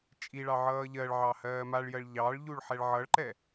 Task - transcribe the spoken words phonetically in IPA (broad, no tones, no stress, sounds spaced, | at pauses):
t͡ʃʼ i ɭ ɑ ʕ ʌː ʎ ɜ ɭ ʕ ɑ h ɜː m a ɭ j ɜ ɭ ʎ ɑ ɭ ʎ u ɭ ħ ɛ ɭ ʕ ʌ ɭ ǃ ɛ